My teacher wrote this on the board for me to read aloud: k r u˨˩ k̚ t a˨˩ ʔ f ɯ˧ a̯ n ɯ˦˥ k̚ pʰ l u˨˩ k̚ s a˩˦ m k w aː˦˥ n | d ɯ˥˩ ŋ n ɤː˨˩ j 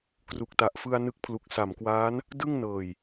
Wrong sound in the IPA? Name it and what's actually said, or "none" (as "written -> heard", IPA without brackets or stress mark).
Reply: none